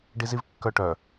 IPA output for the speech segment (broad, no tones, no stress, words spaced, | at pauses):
ɖizivkːœʈœ